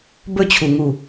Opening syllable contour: falling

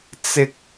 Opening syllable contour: high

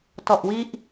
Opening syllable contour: low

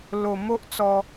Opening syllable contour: low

